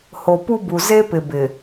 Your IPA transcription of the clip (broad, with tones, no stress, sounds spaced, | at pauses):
h o˨ p u˦ b u˨ z e˦ p ɪ˨ b ɪ˨